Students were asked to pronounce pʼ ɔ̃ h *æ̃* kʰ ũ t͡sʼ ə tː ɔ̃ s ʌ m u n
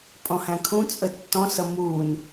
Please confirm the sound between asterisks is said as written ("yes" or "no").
yes